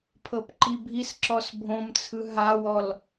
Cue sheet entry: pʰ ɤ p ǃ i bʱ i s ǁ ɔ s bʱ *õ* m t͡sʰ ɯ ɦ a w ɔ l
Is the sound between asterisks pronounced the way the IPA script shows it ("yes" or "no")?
yes